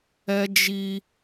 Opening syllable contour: high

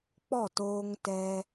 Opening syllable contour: falling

